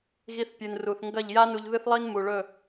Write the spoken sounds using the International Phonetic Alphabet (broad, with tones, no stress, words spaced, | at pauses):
ɣi˧θpʲɨ˨nru˨θŋɡɐ˦˨ʎ ja˦nu˧ʎ ðɨ˦θlˠi˦n mu˨ɭɵ˦˨